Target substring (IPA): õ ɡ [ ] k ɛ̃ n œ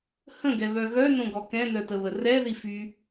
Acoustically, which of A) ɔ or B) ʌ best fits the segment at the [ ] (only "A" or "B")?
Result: A